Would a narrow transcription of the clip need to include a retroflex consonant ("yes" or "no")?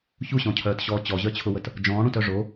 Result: yes